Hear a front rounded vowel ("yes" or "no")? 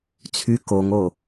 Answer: yes